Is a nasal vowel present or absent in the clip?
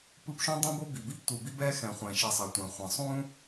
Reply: present